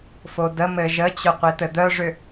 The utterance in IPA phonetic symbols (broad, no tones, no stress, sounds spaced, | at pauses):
f o d ə m ɘ ʒ ə t͡ɕ œ qʷ i t̪ ɘ d̪ œ ʐ ʏ